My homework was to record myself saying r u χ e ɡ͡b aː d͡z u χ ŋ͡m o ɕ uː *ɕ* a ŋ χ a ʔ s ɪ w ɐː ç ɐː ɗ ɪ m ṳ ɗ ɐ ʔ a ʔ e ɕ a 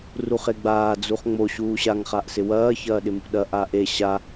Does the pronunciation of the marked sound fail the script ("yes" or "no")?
no